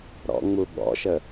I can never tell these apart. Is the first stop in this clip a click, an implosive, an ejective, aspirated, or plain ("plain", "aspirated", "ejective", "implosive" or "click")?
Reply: implosive